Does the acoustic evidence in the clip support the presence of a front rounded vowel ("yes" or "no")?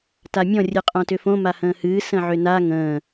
yes